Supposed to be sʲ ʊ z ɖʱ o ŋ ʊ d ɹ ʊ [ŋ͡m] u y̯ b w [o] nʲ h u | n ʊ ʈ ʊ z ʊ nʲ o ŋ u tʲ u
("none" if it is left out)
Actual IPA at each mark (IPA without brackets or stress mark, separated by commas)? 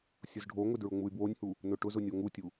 ŋ͡m, o